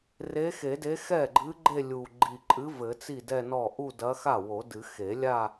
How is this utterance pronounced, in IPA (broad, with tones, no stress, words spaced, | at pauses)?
re˧˥xe˨˩˦de˧˥ xɛ˥˩ɡ͡ǃɨ˧˥ ɡ͡ǃe˥˧lʲu˨˩ ɡ͡ǃi˨˩ǃʼɨ˧˥ vɘ˨˩˦t͡si˥˩dɛ˥˧nɔ˥˩ ʔu˥˧dɐ˧˥ xa˥˩wo˨˩˦dɨ˨˩˦ xe˨˩˦lʲa˥˧